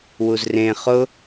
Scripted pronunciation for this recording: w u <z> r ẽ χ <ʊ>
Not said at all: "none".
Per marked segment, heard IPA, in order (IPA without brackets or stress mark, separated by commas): z, ʊ